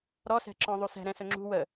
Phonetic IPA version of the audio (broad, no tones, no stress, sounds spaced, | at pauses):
ɾ ɔ s ɛ̤ ǁ ɔ̃ ðˤ u s ɛ̤ ɾ ɛ̃ s ɵ ŋ͡ǁ ṳ w ə